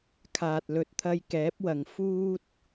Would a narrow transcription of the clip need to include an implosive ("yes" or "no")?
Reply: no